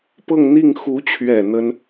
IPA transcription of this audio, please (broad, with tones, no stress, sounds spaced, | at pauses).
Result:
p ɤ˥˧ ŋ n̪ i˥˩ ŋ x u˧˥ t͡ɕʰ ɥ ɛ˨˩ n̪ ə˥ n